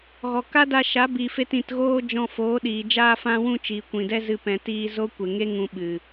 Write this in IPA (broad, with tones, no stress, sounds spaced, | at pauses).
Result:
ɣ ɔ˨ k a˦ d a˧ ʃ a˨˦ b i˨ f e˧ t ĩ˨ t ɣ oː˧ d͡ʒ ɔ̃˧ f oː˨˦ ɗ iː˨ d͡ʒ aː˧ f ã˧ w ũ˧ t͡ʃ iː˨ kʷ ĩ˨ d ɛ˦ z ɨ˧ p ɛ̃˨ t iː˧ z o˦ kʷ e˨ ŋ e˦ ŋ ũ˧ ɓ ɨ˨